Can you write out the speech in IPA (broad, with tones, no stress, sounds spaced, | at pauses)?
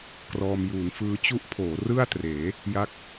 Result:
k r ɔː˧ m j uː˩˦ n f ɯː˦˥ t͡ɕ u˦˥ ʔ pʰ oː˩˦ r ɯ˥˩ a̯ t r eː˩˦ | j a˦˥ k̚